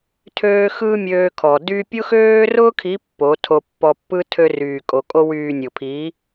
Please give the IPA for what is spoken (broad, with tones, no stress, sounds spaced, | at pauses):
tʰ øː˧ x ɯː˦ mʲ øː˧ kʰ ɔ˨ d y˧ pʲ ʊ˦ x øː˦ r ʊː˦ kʰ i˨˦ pː o˨˦ tʰ o˧ pː ɔ˧ pː ɯ˧ tʰ ø˧ r yː˨ kʼ o˨ kʼ o˧ w yː˨ nʲ ʊ˨ pʰ i˨˦